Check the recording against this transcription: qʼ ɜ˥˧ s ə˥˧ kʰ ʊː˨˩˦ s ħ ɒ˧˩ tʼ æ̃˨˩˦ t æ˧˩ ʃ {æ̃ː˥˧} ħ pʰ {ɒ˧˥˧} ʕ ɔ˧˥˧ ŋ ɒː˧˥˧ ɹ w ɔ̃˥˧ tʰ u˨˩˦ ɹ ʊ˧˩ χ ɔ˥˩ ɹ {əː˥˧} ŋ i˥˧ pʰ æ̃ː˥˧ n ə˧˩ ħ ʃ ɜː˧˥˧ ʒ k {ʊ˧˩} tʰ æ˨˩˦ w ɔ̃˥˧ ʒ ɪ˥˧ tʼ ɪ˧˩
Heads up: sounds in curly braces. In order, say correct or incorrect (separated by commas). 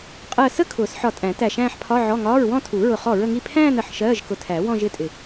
correct, correct, incorrect, correct